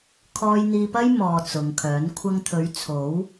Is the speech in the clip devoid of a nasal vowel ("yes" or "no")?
yes